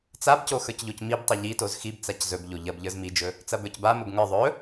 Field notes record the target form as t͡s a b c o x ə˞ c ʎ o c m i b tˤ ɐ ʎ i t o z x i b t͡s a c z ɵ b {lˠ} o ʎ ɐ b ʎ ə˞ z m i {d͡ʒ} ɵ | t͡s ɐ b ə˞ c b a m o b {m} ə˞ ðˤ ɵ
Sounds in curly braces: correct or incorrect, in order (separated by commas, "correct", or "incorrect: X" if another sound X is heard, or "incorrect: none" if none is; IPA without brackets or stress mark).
incorrect: ʎ, correct, incorrect: ŋ